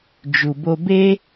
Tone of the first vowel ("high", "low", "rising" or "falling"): low